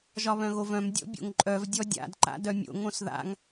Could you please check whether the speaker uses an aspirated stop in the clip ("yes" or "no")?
no